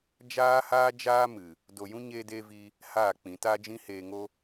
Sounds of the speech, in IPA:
d͡ʒ aː˦ h aː˦ d͡ʒ aː˦ m ɨ˨ | d o˨ j ũ˦ ɲ eː˧ d eː˧ v i˧ | h aː˦˨ k͡p ĩ˨˦ t a˦ d͡ʒ ĩ˦ h eː˧ ŋ o˦

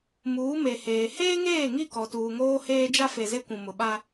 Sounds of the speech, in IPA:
m uː˨˦ m e˨ h eː˨ h eː˦ ŋ eː˦˨ ŋ i˦˨ k ɔ˨ t uː˨ ŋ oː˦ h eː˦ d͡ʒ a˦ f e˨ z e˦ kʷ ũ˨ m ʊ˨ ɓ a˦

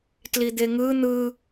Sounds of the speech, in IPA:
t l i d̪ e ŋ ɯ n̪ ɯ

